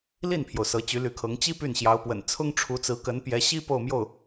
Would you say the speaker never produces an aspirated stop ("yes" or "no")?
no